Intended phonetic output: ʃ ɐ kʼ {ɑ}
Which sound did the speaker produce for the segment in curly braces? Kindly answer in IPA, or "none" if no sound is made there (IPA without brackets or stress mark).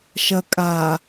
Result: a